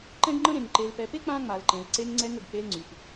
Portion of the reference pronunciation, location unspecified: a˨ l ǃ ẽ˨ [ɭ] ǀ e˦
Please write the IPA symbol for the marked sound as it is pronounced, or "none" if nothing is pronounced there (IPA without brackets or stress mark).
l